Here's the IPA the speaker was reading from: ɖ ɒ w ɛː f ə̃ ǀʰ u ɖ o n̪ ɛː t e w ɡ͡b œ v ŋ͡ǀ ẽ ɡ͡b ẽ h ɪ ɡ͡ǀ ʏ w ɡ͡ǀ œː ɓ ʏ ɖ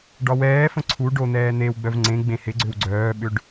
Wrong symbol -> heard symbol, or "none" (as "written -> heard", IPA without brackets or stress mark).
t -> n̪